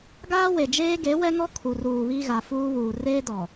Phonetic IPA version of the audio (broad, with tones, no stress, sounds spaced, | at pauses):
ɡ aː˦ w e˨ d͡ʒ eː˦ ɡ e˨˦ w ɛ˦ ŋ ɔ˦ kʰ u˨ r uː˨ β i˦ ɣ a˨ f uː˦ β uː˨ r eː˦ d ɔ˨